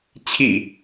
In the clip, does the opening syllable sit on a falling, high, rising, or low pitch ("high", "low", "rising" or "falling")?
low